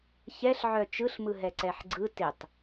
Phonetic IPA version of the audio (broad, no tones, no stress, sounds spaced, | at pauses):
ç ɛ ɬ ʕ œ t͡ʃ ɯ ɬ m ɯ ɦ ɛ ǀ ɛ ħ ɡ͡ǀ ɯ t ɪ tˤ